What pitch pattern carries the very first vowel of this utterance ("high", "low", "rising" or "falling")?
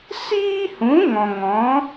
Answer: high